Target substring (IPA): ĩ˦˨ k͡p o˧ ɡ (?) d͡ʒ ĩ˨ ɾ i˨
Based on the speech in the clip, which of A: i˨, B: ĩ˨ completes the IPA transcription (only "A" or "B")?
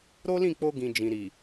B